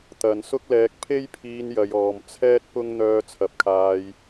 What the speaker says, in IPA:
t̪ ɐ˨˧ n s ʊ˥ k̚ l ɛː˧ k̚ pʰ e˥ j pʰ iː˧ n j ɐ˨˧ j ɔː˨ m t͡sʰ ɛː˥ t̚ p ʊ˥ ŋ n̪ œː˧ t͡sʰ ɐ˨˥ p̚ kʰ aː˧ j

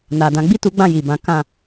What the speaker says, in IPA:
n a˨ d ã˨˦ ɡ͡b i˦˨ t u˨˦ ɡ͡b ã˦˨ j i˨ b ã˨˦ k ã˦˨

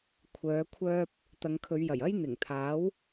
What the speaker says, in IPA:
kʷʰ œː˨˧ kʷʰ œː˧ p̚ | t̪ ɐ˨˧ ŋ kʰ ɵ˨˧ ɥ j ɐ˨˩ j ɐ˥ j n̪ ɪ˨˩ ŋ t̪ʰ aː˨˥ w

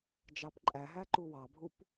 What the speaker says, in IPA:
d͡ʒ ɑ p ǃʼ æ ɦ æ ǃ u w ɑ bʱ u p

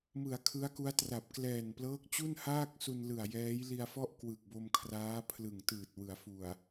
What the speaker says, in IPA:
m ɯ˩˦ a̯ kʰ ɯ˦˥ a̯ k u˦˥ a̯ t r a˨˩ p̚ k l ɛː˨˩ n p l ɤː˦˥ k̚ t͡ɕ u˥˩ n h aː˥˩ k̚ s u˧ n l ɯ˨˩ a̯ j ɛː˦˥ j l i˧ a̯ f ɔ˥˩ ʔ k w ɯ˨˩ k̚ b o˧ m kʰ r aː˦˥ pʰ l ɯ˨˩ ŋ t ɯː˨˩ t̚ w ɯ˩˦ a̯ f u˨˩ a̯

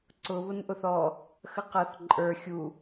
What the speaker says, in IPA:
ǀ ʊ β ʊ n ʔ ʊ θ ɔ | x ə q ʌ θ ǃʼ ə˞ xʲ u

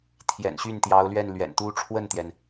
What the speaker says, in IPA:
t̪ʰ j ɛ̰˨˩ n ɕ y˥˩ n t̪ j ɑ˧˥ ʊ̯ l ɥ ɛ˥˩ n l ɥ ɛ̰˨˩ n t̪ u˥ ʈ͡ʂʰ w ə˥˩ n t̪ j ɛ˩ n

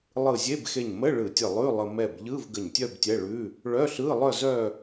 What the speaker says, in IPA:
lˠ ɯ˧˩ zʲ e˧˥˧ b x e˧˩ ɲ m ə˧˥˧ ɭ ɯ˧˩˧ tʲ ə˧˩ lˠ ʉ˧˥˧ lˠ ə˧ m ɛ˧˩ b ʎ ɯ˧˥˧ v ɡ ə˧˩ ɲ tʲ œ˥˧ b tʲ ɛ˧˥˧ ɭ ʉ˧˥˧ | ɭ œ˧˥˧ ɬ ɯ˧˥˧ lˠ œ˥˧ z œ˥˧

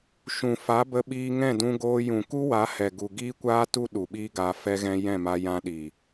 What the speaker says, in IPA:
ʃ ũ˨ f a˨˦ b ə˧ ɓ iː˧ ŋ ɛ̃˦˨ d ũ˧ ɡ oː˧ j ũ˨ k u˦ w a˨˦ h ɛ˨ ɡ u˨ ɡ iː˦ kʷ aː˦ t u˦ ɗ u˨ ɓ iː˦ ɡ aː˧ f ɛ˧ ɣ ɛ̃˧ j ɛ̃˦˨ m a˧ j ã˧ ɗ iː˨

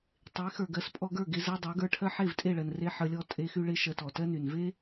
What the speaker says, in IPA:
tˤ e˨˦ x ə˞˨ ɡ ɜ˨˦ s pʼ ɔ˧ ɡ ə˞˦˨ ɡ e˧ z ɜ˧ dˤ ɜ˨˦ ɡ ə˞˧ ʈʰ ɜ˦ ħ e˦˨ v tʼ e˦˨ ɭ ɜ˨ n r e˦ ħ ə˧ lʲ ɔ˦ tʼ e˦ x y˦ ɭ e˦ ʃ ɜ˧ t ɔ˨ t ɜ˦ n y˨ n v e˦

